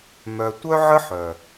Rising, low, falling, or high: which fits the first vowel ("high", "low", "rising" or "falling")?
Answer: low